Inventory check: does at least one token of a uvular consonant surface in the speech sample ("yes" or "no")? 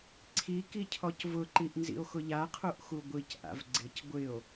yes